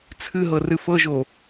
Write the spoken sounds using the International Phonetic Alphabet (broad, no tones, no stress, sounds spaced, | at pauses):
t͡sʰ ɨ ɦ ɤ r ɨ f ɤ ʒ o